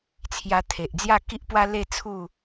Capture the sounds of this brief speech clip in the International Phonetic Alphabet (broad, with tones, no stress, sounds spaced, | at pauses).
t͡sʰ j a˧ t̪ʰ e˨ ʔ d͡z j a˥˧ k i˦ ʔ p w a˦ l e˥˧ t͡sʰ u˥˧